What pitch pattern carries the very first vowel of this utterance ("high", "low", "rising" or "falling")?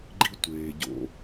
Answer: high